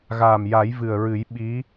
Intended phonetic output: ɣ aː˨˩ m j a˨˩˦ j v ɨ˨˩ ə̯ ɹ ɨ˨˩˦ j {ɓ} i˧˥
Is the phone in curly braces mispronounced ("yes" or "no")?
no